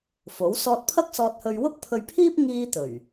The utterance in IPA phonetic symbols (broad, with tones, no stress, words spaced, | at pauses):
fo˨˥w sɔː˧t̚pʰɐ˥k̚sɔː˧t̚hɵ˧ɥ wʊ˥k̚pʰɵ˧ɥpʰiː˥p̚ ŋiː˥ t̪ɵ˨˩ɥ